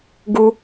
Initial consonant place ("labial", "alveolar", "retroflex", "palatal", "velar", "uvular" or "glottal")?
velar